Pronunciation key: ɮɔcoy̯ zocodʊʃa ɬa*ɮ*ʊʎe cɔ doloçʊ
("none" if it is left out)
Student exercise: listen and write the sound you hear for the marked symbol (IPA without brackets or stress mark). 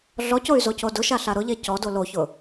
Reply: ɾ